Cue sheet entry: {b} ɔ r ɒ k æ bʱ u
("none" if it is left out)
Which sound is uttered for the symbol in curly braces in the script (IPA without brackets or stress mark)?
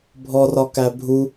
bʱ